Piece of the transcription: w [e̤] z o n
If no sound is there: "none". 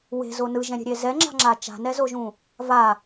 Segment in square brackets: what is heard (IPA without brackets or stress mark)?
e̤